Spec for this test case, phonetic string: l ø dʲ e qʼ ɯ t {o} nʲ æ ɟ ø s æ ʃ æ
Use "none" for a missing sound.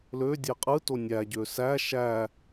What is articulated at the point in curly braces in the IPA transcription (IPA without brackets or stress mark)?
o